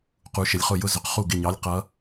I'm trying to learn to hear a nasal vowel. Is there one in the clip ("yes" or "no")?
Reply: no